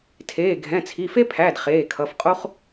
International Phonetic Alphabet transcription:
tʰeː˩˧˩ɡʱɛ̃˩˧˩t͡sʰi˩˧˩fe˥ pʰæ˩˧˩d χeː˩˧˩kʰʌ˩˧˩fqʼo˥χ

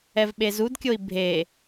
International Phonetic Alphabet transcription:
ɛvɓezudkʲoi̯ bʱe

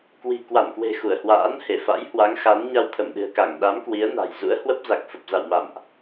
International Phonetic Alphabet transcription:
kwi̤˨˩kwa˧˩nkwe̤˨˩ xu˧˩ə̯hwa̰ː˧˥n he˧˩fa̰˧˥j hwa˨˦ŋxa˨˦nɲa˧w t̪ʰə˧˩mɗɨ̤˨˩ə̯ka˧˩ŋ ɗa˨˦mkwi˨˦ə̯na̤˨˩j zṵ˧˥ə̯hwə˦˥p̚ za˨˩k̚fə˨˩p̚za̰˧˨w ma̰˧˨mʔ

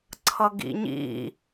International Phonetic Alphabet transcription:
ǀʰʌɡḭɲḭ

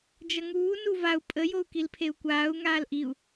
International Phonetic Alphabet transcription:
d͡ʒʌŋuː nuvau̯ pʼə jou̯kilpʰeu̯kʷaːu̯ ŋaːlʔiu̯

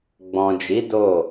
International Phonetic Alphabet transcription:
ɡ͡bɔ̃˨d͡ʒi˨˦ do˦˨

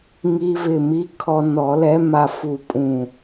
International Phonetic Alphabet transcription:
ŋi˧vɪ˧˩mi˧˥ kʰɔ˧nɔ˨˩˦lɛ˧˥ ma˧fu˧˩ pʼũ˧˩

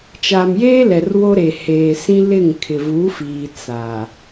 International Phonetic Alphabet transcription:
t͡ʃa˨mjeː˦lɛ˨r wo˦ɾe˨ heː˨sĩ˦ lɪ˦˨ŋ kʰɪ˨vu˨˦fiː˨ t͡sa˨

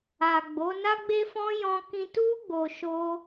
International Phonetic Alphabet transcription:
a˨ɡ͡bo˨˦ na˦ɡ͡be˦fɔ̃˦ jɔ̃˧kĩ˧tu˦ ɡ͡bo˧ʃo˦

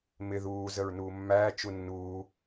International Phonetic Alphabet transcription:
mɪ ðuː zəɹnuːmːæː t͡ʃunːuː

